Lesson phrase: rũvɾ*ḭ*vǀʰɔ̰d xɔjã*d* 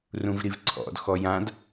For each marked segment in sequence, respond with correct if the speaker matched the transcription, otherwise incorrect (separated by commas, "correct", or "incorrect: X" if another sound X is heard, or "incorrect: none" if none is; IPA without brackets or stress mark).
incorrect: i, correct